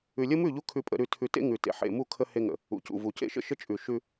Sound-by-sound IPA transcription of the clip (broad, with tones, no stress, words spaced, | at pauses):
ʉ˨lʲə˦mʉ˦˨ʎu˦ kʰʉ˦pʼə̰˨˦ ɾʉ˨tʰʉ˨tḛ˦ ŋʉ˨tḛ˨ ħḛ˨mu˦˨kʰə˦ he˦ŋə̰˨ | ṵ˨cṵ˨vu˨ cḛ˦ʃə̰˦ ʃə˦t͡ʃʼʉ˨ ʃʉ˦